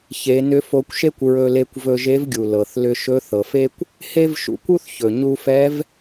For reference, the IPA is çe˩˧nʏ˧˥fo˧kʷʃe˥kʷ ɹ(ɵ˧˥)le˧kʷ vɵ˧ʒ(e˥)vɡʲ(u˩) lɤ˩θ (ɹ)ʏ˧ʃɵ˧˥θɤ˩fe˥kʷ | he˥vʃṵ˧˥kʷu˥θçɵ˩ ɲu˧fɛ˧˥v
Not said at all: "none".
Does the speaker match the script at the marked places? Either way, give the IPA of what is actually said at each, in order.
ɵ˧, e˧˥, u˩, l

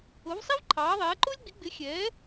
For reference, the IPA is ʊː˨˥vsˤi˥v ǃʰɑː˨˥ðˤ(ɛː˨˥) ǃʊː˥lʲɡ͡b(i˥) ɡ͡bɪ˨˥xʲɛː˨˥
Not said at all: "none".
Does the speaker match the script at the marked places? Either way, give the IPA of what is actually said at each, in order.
ɛː˨˥, i˨˥

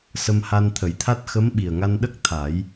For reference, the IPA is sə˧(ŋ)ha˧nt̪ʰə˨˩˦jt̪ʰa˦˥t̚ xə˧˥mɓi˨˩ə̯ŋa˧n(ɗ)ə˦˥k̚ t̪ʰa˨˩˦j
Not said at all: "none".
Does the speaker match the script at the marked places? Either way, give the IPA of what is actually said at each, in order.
m, ɗ

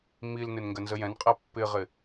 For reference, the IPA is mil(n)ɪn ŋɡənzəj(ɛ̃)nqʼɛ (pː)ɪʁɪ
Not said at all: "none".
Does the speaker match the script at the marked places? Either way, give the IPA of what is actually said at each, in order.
n, ɛ̃, pː

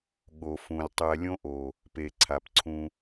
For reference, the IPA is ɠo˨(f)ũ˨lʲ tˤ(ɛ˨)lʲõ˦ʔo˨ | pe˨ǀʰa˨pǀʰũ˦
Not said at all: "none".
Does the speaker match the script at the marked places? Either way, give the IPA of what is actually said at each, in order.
f, ɛ˨

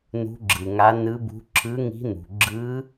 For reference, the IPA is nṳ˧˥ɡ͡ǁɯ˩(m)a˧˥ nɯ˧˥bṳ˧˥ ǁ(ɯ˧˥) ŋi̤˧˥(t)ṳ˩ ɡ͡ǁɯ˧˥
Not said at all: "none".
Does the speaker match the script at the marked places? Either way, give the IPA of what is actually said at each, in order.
ŋ, ɯ˧˥, n̪

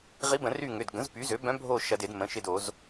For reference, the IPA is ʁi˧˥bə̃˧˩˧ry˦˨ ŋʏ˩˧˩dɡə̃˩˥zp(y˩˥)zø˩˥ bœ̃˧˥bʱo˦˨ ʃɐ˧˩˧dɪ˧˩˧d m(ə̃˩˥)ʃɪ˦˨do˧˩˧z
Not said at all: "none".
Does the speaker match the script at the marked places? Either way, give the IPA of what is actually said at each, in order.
y˩˥, ə̃˩˧˩

